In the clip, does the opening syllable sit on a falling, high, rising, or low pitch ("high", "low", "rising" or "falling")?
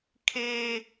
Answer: high